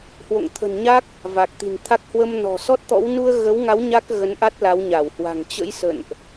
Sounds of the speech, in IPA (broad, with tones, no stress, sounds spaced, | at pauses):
h w o̰˧˨ ŋ t̪ʰ ə̤˨˩ n ɲ a˦˥ k̚ | v a˨˩ k̚ t̪ i̤˨˩ n t̪ʰ a˦˥ k̚ h w ə˧ m n ɔ̤˨˩ s ɔ˦˥ t̚ t̪ ɔ̰˧˥ w n u˧ ə̯ ɣ ə˨˦ w ŋ a˨˦ w ɲ a˦˥ k̚ ɣ ə˨˦ n ʔ a˦˥ t̚ l a˨˦ w ɲ a˧˩ w h w a̤˨˩ ŋ t͡ɕ ə̰˧˥ j s ə̰˧˨ n ʔ